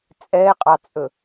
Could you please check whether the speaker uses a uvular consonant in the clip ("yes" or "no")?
yes